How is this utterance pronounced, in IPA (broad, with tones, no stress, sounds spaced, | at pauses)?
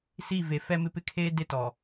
s i˦˨ v e˨ f ɛ˦ m ɪ˦ p ɪ˦ kʰ eː˦ d ɪ˦ t ɔ˨